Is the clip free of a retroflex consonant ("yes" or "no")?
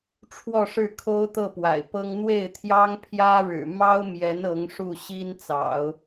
no